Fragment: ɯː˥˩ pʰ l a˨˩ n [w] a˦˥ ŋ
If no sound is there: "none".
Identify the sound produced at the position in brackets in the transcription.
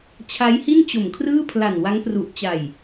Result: w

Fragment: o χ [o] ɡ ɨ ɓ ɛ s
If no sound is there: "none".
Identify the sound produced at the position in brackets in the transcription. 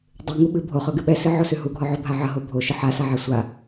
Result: ɵ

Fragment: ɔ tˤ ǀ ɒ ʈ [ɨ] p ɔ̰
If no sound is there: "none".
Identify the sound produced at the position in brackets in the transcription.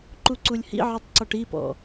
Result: i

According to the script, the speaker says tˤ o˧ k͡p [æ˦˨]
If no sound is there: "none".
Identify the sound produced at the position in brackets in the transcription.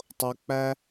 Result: æ˦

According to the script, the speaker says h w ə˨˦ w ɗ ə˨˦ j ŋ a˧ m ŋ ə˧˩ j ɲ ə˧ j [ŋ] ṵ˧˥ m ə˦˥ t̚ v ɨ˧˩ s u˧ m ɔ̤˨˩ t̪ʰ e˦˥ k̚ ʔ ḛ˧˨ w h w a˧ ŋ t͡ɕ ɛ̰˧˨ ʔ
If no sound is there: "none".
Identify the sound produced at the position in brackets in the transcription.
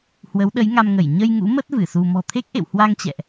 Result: ŋ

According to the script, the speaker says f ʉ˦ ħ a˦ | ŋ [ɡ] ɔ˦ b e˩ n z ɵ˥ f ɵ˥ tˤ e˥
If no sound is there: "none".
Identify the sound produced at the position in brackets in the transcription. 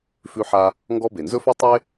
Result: ɡ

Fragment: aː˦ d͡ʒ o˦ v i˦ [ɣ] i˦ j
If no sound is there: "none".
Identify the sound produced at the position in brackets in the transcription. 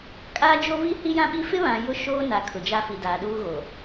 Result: h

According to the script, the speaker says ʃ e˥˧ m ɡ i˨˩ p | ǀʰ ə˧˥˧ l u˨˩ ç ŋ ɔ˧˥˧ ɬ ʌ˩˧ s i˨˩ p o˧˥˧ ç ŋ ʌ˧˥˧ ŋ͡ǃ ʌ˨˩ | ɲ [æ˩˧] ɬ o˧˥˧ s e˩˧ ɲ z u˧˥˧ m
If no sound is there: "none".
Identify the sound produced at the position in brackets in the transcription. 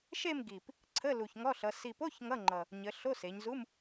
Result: ə˩˧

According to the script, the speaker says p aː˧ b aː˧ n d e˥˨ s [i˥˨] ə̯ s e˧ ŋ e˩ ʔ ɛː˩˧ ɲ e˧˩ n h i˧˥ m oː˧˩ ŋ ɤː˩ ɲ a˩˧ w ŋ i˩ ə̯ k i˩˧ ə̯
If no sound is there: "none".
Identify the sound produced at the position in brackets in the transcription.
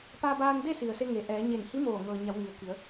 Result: i˩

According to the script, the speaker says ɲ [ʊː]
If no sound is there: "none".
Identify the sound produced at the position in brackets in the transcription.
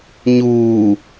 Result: uː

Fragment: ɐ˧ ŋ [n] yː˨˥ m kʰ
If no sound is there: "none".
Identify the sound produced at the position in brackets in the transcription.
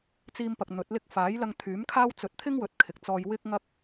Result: t̪ʰ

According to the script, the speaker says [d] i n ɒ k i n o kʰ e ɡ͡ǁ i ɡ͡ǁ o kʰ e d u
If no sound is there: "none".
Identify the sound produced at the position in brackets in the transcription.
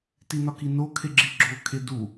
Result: t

